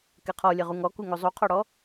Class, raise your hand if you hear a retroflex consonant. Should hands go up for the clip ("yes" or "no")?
yes